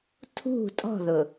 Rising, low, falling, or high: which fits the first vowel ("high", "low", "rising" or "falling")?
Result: falling